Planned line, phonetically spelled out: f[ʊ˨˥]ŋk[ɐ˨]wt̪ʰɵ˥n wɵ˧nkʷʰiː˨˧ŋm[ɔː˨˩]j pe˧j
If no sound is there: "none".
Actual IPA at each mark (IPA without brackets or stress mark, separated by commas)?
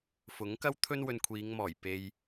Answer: ʊ˨˥, ɐ˥, ɔː˨˩